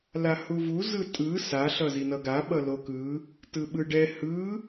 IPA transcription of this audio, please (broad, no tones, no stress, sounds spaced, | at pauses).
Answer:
l a h u v u z ɯ tʼ ɯ s a ɬ ʌ z i n ʌ ɡ a ɓ ʌ l o k ɯ | t ɯ ɓ ɯ ɖ ɛ h ɯ